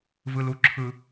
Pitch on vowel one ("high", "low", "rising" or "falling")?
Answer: low